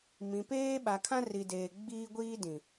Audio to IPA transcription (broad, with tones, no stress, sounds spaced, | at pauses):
m ĩ˨ p eː˦ ɓ a˨ kʰ ã˦ r i˨ d eː˨ ɡ͡b iː˦ ɡʷ iː˦ d ĩ˨